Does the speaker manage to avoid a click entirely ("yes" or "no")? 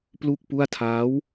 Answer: yes